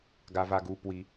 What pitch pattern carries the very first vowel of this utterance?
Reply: low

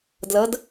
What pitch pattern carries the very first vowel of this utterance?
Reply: rising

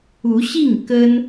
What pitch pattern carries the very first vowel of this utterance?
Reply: rising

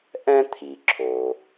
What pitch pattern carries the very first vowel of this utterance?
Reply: high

